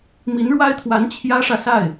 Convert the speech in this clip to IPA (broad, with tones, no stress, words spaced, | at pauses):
mi˧˥nɻwa˥ɪ̯t̪ʰwa˧˥n t͡ɕʰjä˥ʂä˨ sa˥˩ɪ̯